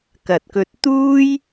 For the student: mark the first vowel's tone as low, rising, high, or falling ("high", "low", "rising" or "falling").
low